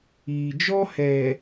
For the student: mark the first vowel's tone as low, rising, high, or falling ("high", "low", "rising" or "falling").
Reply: low